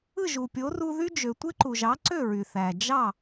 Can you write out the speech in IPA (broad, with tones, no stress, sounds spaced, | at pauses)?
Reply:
ɯ˥˩ ʒ u˩ pʲ o˩˥ r u˧ ð y˥ d͡ʒ ø˩ tʷ e˥ ǃ u˩ ʒ ɑ˩˥ ǀ ø˥˩ ɹ y˩ θ æ˩ d͡ʒ ɑ˥˩